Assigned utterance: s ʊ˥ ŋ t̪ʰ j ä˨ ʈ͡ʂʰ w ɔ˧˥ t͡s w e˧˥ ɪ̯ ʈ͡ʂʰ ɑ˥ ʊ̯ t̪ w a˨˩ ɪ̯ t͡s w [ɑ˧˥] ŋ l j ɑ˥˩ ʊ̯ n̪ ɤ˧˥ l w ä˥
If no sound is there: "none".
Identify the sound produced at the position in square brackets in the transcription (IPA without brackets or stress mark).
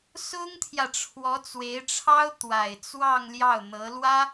ɑ˥˧